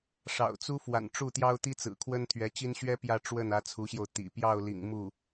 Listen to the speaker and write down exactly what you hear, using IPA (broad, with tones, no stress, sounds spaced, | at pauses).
ʂ ɑ̰˨˩ ʊ̯ t͡s u˥ f w a̰˨˩ n ʈ͡ʂ u˥˩ t̪ j ɑ˥ ʊ̯ t̪ i˥ t͡s ɹ̩˨˩ kʰ w ə˥ n t̪ʰ ɥ ɛ˧˥ t͡ɕ i˥ n ɕ ɥ ɛ˥ p j ä˥˧ ʈ͡ʂ w ə˥˩ n ä˧˥ t͡sʰ u˧˥ ɕ j o˧ ʊ̯ t̪ ḭ˨˩ p j ɑ˥˩ ʊ̯ l ḭ˨˩ ŋ m u˥˩